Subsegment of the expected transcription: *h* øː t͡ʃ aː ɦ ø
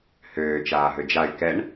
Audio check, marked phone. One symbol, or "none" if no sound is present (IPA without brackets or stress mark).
h